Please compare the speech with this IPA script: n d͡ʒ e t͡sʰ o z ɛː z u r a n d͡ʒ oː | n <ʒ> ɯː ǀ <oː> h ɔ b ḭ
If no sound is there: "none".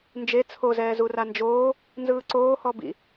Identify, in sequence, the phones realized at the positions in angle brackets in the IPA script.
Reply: z, oː

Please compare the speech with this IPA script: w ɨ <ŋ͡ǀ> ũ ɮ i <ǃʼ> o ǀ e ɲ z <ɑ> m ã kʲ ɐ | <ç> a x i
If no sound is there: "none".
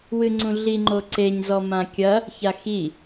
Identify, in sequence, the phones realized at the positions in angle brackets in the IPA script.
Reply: ŋ͡ǀ, ŋ͡ǃ, ɔ, ç

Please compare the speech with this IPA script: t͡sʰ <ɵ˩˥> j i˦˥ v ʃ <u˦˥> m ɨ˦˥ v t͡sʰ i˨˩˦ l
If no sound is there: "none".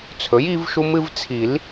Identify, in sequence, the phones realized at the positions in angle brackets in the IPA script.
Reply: ɵ˩˥, u˦˥

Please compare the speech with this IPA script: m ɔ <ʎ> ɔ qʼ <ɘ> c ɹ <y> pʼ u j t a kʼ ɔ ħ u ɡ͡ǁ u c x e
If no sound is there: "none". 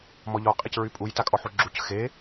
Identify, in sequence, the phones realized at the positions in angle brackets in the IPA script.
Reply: ʎ, e, y

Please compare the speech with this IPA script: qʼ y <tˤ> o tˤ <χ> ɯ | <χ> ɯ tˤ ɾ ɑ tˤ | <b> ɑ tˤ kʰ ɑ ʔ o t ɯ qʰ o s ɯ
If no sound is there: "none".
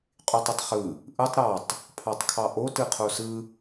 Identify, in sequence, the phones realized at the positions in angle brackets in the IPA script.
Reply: tˤ, χ, ʔ, pʰ

